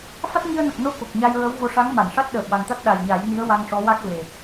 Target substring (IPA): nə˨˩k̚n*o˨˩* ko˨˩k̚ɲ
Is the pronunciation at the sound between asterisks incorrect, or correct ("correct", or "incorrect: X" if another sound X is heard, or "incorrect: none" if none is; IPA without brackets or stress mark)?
incorrect: o˧